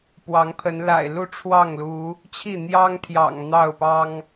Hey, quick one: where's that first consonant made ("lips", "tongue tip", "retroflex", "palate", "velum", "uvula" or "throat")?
lips